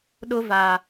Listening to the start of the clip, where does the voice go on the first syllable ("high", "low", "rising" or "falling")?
high